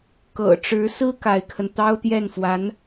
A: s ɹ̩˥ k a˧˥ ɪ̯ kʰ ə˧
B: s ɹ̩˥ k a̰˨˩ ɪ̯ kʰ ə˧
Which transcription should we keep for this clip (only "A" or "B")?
A